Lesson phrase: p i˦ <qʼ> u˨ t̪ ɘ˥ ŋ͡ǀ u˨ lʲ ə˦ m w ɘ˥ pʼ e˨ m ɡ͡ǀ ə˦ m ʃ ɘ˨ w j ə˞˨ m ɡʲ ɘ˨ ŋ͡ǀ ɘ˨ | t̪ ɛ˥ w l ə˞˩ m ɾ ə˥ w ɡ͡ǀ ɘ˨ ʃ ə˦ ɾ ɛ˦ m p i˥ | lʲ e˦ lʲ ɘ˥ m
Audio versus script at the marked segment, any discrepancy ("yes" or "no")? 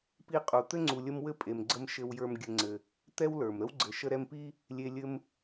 no